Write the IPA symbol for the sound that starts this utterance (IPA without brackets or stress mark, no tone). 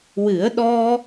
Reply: w